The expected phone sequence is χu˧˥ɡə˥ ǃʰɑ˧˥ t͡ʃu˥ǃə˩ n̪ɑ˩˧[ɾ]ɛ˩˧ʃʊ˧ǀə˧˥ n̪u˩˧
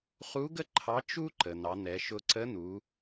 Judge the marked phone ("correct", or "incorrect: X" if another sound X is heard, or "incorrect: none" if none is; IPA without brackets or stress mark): incorrect: n̪